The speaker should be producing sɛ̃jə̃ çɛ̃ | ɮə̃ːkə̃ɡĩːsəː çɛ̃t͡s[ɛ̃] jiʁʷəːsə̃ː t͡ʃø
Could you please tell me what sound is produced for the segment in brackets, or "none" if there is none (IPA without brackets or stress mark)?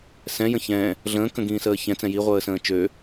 ɛ̃